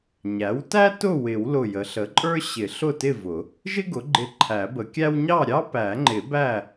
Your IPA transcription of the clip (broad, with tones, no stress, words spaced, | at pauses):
ɲæ˩˥wtæ˥ tʊ˥˨wɪ˨˩˦w lʊ˧˩jə˩˥ɬə˩˥ǃʼə˞˥ ɕɪ˨˩˦ɬʊ˥˨tɪ˥˨vʊ˨˩˦ | ʒɪ˥ɡʊ˩˥ɡ͡ǃɪ˧˩ ǃʰæ˨˩˦bə˨˩˦kʲæ˥w ɲɑ˥˨ɾʲɑ˥pæ˨˩˦ŋ͡ǃɪ˨˩˦ bæ˥˨